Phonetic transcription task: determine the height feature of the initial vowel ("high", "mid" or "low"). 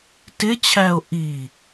high